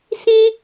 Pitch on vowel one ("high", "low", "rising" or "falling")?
high